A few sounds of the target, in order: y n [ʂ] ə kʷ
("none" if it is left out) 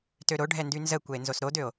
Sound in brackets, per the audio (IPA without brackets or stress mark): z